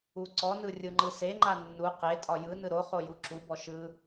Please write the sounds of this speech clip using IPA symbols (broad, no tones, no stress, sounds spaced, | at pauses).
u ǀ ɔ n ɯ rʲ ɯ ŋ͡ǃ ɯ s e ŋ͡ǃ a nː u q e tʼ ɒ j ɯ n ɯ ɾ o χ o j u ǁ u b ɔ ʃ ɯ